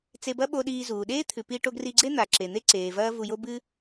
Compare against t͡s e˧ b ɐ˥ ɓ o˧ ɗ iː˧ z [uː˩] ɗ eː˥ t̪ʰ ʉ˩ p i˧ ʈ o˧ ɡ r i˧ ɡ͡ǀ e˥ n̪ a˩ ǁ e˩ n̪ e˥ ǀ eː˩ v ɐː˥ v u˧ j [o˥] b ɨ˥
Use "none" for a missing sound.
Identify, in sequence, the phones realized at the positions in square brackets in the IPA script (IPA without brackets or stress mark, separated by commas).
uː˩, o˥